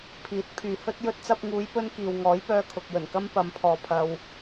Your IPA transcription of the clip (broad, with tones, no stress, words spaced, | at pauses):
pʰiː˨˥t̚ pʰyː˨hɵ˥t̚ jɵ˧t̚t͡sɐ˧p̚ŋuː˨˧jpɵ˧n kiː˨wŋɔː˨˥jpœː˧ kʰʊ˨k̚jɵ˨˩nkɐ˥m pɐ˨˧mpʰɔː˨ pʰɐ˨w